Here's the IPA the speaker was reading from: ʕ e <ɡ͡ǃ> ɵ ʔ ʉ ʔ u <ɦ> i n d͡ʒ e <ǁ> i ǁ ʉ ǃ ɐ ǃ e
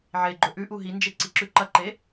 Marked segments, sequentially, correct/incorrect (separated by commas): correct, correct, incorrect